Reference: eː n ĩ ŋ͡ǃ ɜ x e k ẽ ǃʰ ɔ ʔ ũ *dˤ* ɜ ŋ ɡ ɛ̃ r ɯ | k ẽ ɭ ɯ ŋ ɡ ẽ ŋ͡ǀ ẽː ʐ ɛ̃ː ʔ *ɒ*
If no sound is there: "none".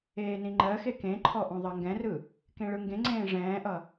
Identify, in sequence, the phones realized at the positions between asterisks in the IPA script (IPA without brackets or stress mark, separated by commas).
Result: ðˤ, ʌ